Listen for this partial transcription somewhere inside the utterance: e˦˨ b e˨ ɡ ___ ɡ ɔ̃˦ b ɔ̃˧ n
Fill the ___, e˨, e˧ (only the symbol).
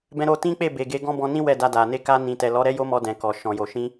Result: e˧